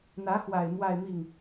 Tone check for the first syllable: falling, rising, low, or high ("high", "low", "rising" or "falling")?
rising